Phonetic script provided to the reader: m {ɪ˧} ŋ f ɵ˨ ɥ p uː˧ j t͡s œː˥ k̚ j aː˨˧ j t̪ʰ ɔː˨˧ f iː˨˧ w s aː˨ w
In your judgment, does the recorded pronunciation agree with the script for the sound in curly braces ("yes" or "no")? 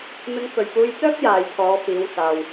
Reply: yes